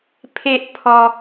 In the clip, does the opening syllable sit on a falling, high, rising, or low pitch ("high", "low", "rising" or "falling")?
high